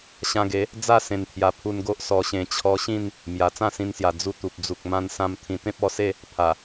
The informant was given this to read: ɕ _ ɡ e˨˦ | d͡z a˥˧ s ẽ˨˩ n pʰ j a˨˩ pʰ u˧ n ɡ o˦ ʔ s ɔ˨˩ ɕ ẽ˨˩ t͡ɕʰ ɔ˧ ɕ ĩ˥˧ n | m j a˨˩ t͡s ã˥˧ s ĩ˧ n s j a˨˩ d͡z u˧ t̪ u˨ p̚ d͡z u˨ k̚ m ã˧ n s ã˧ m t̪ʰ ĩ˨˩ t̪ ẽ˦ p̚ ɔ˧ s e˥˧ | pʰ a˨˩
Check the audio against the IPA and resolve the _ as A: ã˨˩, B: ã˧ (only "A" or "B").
B